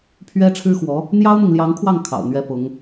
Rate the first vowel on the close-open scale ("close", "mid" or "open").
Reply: mid